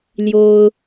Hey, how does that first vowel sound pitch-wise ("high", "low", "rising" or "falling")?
high